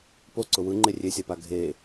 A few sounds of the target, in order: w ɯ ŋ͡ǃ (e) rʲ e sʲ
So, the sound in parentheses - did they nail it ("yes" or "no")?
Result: yes